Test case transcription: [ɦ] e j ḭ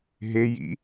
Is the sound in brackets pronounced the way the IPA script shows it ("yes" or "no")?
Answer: yes